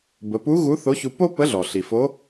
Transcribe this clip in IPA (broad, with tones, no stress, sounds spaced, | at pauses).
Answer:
b ə˩˧ p u˧˥ ɣ u˧˥ θ o˧˥ ç u˧ p o˥ p ə˧˥ ɮ ɔ˩ ɬ i˩ f o˧˥